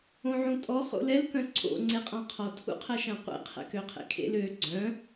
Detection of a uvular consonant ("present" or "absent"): present